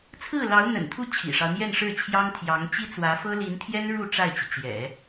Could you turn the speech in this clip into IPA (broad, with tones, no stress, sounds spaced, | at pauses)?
t͡sʰ ɹ̩˥˩ l ɑ˧˥ ʊ̯ n̪ ə̰˨˩ n t̪ʰ u˥˩ t͡ɕʰ ḭ˨˩ ʂ ɑ˦ ʊ̯ n̪ j ɛ˥˧ n ʂ ɻ̩˥˩ t͡ɕʰ j ɑ˥ ŋ t̪ʰ j ɑ˧˥ ŋ t͡ɕ i˥ t͡s w ä˧˥ f ɤ˥ l i˧˥ n t̪ʰ j ɛ˥ n ɻ u˥˧ ʈ͡ʂ a˥˩ ɪ̯ t͡ɕ i˩ t͡ɕ j ɛ̰˨˩˦